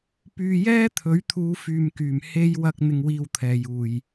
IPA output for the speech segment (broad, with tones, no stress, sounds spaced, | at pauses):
p yː˧ j ɛː˥ t̪ʰ ɵ˨˥ ɥ t̪ʰ uː˨˧ f yː˨ m k yː˨˩ m h e˧ j w ɐ˧ k̚ n̪ ɪ˧ ŋ w iː˧ w t̪ʰ ɛː˨ j uː˨ j